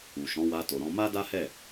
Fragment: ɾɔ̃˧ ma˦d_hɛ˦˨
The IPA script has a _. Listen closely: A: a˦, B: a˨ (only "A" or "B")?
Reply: A